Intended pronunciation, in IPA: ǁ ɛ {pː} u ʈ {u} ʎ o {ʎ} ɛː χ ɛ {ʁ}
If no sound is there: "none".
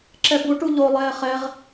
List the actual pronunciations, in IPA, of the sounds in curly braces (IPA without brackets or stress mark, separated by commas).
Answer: b, u, lˠ, ʁ